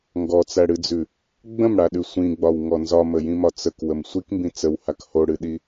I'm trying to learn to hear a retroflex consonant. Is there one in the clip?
yes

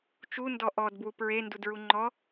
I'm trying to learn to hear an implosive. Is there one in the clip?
no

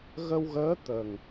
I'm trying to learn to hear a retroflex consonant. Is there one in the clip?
no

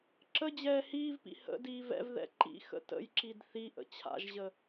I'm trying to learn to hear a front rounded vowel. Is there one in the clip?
no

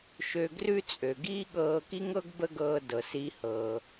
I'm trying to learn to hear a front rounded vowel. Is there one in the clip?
yes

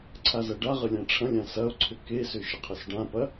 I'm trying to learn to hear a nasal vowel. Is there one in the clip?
yes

